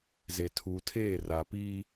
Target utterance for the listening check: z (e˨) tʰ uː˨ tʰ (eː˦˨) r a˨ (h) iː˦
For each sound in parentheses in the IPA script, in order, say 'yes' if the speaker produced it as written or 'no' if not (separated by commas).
yes, yes, no